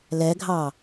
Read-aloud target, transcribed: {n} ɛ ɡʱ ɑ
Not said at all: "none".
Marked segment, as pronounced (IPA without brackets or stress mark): l